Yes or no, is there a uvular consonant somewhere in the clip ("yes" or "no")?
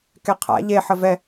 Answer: yes